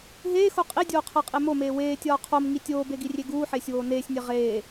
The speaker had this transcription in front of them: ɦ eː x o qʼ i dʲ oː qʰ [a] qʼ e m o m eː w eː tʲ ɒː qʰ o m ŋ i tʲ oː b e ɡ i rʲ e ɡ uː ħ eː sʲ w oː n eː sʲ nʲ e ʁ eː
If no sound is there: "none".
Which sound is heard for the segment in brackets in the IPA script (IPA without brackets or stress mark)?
æ